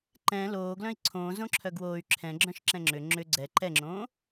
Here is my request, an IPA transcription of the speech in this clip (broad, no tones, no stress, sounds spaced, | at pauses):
ǃ ɛ̃ l oː ɡ l œ̃ i̯ ǀʰ õː z õ ǁʰ œ ɡ w oː y̯ ǁʰ ɛ̃ ɡ͡ǁ œ̃ ʃ ǁ ɛ̃ ŋ͡ǁ ʏ ŋ͡ǁ ʏ ɡ͡ǀ ɛ ǃ ɛ ŋ͡ǁ õː